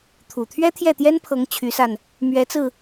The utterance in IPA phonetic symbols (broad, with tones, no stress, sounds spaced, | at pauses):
t̪ʰ u˨˩ t̪ʰ ɥ ɛ˥ t̪ʰ j ɛ˥˩ t̪ j ɛ˥ n pʰ ɤ˧˥ ŋ t͡ɕʰ y˧˥ s a˧ n | m ɥ ɛ˧˥ t͡s ɹ̩˧